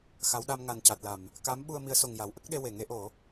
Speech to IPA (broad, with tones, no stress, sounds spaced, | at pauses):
x a˧˥ w ɗ a˧ m ŋ a˨˩ n c a˨˩ t̚ l a˨˩˨ m | k a˧˥ m ɓ u˧ ə̯ m i˧˥ ə̯ s o˨˩ ŋ j a˨˩˦ w ʔ ə˦˥ k̚ ɗ e˧ w e˨˩˨ ŋ e˧˥ ʔ o˨˩˦